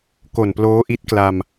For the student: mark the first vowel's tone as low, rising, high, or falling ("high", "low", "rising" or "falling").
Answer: low